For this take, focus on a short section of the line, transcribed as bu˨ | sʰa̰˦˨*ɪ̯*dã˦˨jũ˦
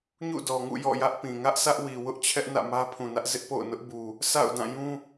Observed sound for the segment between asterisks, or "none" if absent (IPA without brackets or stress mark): ʊ̯